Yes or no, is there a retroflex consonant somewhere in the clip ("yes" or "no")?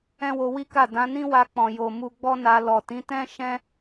no